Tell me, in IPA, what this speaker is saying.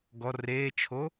ɡ ɔ r eː t͡ʃʰ o

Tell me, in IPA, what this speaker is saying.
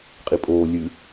qʼ i pʼ oː lʲ ɨ

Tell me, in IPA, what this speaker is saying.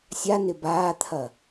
sʲ a n ɪ b aː t̪ʰ ɐ

